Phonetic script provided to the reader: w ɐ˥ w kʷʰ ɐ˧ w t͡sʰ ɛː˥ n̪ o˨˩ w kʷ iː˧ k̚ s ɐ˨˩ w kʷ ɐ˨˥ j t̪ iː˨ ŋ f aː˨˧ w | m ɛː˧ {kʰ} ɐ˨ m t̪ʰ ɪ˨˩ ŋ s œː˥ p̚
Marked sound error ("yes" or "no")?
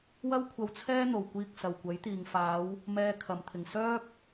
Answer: no